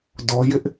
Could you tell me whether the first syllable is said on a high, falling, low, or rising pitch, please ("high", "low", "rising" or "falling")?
high